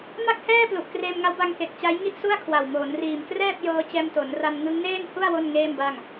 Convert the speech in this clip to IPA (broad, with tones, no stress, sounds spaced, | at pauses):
m a˥˩ k̚ h ɛː˥˩ p l u˨˩ ʔ k r eː˧ m ŋ a˦˥ w b a˧ ŋ k e˨˩ k̚ t͡ɕ a˦˥ j ŋ i˥˩ ʔ s u˥˩ a̯ kʰ w a˨˩ w m oː˩˦ n r iː˨˩ m k r ɛː˥˩ p̚ j ɤː˧ t͡ɕ ɛː˧ m t o˩˦ n r a˧ n ŋ ɯ˦˥ ŋ n eː˥˩ n h u˥˩ a̯ w o˥˩ n ŋ eː˥˩ m b a˥˩ ŋ